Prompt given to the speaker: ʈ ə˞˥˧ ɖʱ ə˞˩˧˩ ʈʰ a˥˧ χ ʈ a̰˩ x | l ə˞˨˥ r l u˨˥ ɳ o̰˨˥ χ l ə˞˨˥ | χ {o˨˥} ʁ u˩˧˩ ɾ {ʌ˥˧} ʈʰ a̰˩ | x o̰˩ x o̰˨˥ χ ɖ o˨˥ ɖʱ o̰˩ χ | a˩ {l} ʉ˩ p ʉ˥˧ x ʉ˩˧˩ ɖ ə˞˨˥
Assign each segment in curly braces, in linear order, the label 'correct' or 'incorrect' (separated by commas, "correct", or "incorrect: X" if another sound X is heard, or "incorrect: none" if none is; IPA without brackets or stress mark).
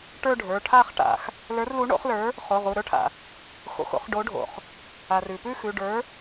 incorrect: o˩˧˩, incorrect: ə˞˥˧, incorrect: r